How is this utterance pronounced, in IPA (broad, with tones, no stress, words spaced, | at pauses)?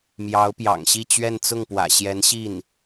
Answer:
mjɑ˧˥ʊ̯pjɑ̰˨˩ŋɕi˥˧t͡ɕɥɛ˥˧n t͡sʊ˥˩ŋpwä̰˨˩ɕjɛ˧˥nɕi˥˩n